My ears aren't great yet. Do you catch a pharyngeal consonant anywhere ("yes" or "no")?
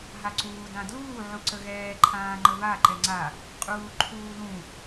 yes